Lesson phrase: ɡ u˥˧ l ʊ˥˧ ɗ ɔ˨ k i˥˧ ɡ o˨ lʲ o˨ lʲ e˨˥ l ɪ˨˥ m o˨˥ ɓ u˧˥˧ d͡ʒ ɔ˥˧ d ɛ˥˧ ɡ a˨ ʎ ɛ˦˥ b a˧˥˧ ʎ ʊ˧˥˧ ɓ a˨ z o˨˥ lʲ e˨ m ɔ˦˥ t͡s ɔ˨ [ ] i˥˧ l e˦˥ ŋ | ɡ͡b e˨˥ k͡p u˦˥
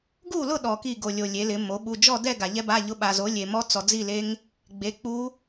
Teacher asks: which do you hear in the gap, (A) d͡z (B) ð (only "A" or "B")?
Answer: A